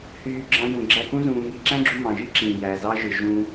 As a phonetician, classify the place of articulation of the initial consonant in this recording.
glottal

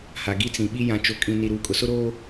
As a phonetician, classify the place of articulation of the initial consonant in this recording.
glottal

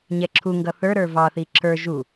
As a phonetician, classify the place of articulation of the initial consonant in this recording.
palatal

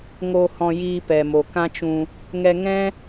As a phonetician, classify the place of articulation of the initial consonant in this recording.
velar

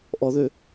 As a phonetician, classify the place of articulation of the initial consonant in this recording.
glottal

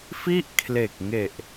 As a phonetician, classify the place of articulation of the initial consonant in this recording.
labial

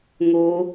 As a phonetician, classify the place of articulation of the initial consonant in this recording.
velar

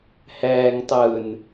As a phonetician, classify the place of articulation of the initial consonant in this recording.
glottal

